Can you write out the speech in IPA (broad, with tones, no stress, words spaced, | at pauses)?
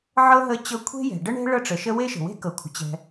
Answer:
ʕɤ˥ ɦə˥t͡ɕɤ˥ kʷʰe̤˥jɛ̤˩ɖə˥ɳe̤˥ ɭɤ˥ʈ͡ʂə˩ʃə˥ we˥ʃə̤˩we̤˥ kɤ˩kʷʰə̤˩ t͡ɕɛ̤˩